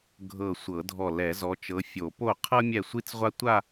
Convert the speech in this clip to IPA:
ɡʱɤ˧˩sʷɤ˨˩˦dʱɔ˧˩ lɛ˨˩˦zɔ˨˦ t͡ʃɤ˨˦fʲo˨˩˦po˥˩ qʰɤ˥mʲɛ˥˩sʷi˥t͡sʁʷa˥ tʷa˥˧

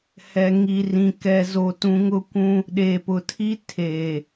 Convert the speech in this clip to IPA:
hɛ˨ŋi˨ rĩ˨ kɛ˨zo˨tũ˨ ŋʊ˦kʷũ˦ | ɗeː˨pʊ˨tʰi˦ tʰeː˨

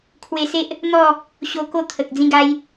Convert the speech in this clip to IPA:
kʰwe˧se˦ʔ | n̪ɔ˥˧ | ɕo˧ko˥˧ t̪ʰə˨k̚ d͡zĩ˥˧ɡa˦j

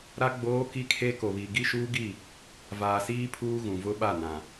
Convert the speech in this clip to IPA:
ɾa˦ ɡ͡boː˦ki˦kʰe˦ ko˨βi˨ ɡi˦ʃuː˦ɡi˦˨ | vaː˨siː˦ pʰuː˦ɣũ˨ vʊ˦ɓa˦˨nã˨

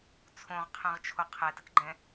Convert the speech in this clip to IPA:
t͡sʰõʁqʰɛ̃ʁt͡ʃʰo qʰɛtəkɡ͡ǃɛ̃

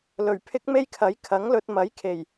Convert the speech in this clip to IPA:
lɵ˨˩ɥpʰɪ˥k̚ me˥jkʰɐ˨˥j kʰɐ˨˥ŋlɵ˧t̚ mɐ˨˥jkʰe˨˩j

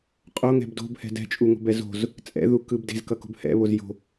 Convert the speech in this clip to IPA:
qʼoŋɛ̤b do̤bhɛ̤ dɛ̤t͡ʃʼuŋo̤bɛ zo̤z | t͡sʼɛ̰ðukɯb de̤zkʌko̤b hɛ̰βoz jo̤

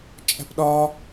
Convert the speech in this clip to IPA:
t͡ʃʼæ̤pɗɒ

